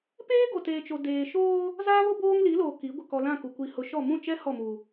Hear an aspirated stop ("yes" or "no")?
no